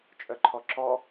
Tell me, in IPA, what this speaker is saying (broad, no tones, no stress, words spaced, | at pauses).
t͡ʃʼœǃʰɔǁɔ